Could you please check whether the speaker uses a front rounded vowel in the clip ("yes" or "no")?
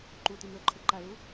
no